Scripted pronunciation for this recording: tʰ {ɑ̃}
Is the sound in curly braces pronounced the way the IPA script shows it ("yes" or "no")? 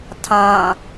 yes